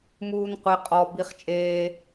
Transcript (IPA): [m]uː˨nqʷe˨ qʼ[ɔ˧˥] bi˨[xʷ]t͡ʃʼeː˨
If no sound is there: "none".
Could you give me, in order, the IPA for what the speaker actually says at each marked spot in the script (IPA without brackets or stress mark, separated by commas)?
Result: m, ɔ˨, χ